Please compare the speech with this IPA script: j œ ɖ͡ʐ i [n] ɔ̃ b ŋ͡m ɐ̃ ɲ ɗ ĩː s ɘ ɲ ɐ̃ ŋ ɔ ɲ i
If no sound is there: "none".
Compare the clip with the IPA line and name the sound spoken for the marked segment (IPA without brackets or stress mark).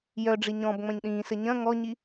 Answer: ɲ